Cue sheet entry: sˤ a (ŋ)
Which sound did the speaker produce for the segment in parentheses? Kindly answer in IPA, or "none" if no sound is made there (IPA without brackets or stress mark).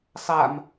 m